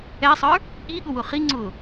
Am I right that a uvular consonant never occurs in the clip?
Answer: no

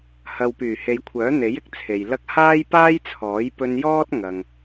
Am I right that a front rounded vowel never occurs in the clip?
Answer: no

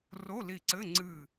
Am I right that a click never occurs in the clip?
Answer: no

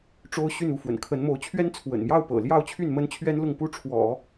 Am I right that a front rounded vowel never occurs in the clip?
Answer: no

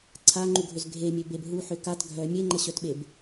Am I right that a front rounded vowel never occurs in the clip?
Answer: no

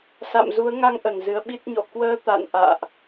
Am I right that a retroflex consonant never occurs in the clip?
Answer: yes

